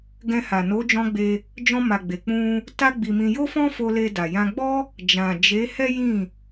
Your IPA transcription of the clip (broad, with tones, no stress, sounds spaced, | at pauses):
ɡ ɛ̃˧ h a˨ n o˨˦ d͡ʒ ɔ̃˦ ɡ͡b e˧ | d͡ʒ ɔ̃˧ m a˨ ɡ͡b e˨ k͡p ũ˧ | t a˦ ɡ͡b i˧ m ĩ˧ j o˦ f ɔ̃˦ f o˧ l e˧ d a˨ j ã˧ ɡ͡b ɔ˦ | d͡ʒ ã˨ d͡ʒ e˨˦ h ɛ˦ j ĩ˦˨